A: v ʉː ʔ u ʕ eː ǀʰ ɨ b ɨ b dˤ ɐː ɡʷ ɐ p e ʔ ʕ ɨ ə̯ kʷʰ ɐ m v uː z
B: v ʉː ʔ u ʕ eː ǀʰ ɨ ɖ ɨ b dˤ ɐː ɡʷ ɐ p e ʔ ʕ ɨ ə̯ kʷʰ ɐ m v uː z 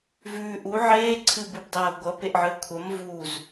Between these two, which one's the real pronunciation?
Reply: A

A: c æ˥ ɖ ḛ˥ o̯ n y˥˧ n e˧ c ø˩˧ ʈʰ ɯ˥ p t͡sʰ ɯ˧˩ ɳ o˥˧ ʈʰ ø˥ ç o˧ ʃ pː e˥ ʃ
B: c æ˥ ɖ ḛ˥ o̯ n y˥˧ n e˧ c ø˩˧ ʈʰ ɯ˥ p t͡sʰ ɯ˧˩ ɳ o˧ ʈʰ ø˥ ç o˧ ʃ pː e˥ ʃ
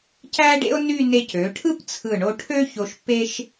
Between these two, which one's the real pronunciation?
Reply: B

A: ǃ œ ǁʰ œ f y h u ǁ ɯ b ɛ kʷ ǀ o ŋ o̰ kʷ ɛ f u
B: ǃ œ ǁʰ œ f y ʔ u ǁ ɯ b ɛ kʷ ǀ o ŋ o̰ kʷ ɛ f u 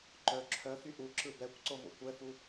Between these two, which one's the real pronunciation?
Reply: B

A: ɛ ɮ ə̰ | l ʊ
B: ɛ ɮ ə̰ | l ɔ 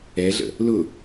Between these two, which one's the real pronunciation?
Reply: A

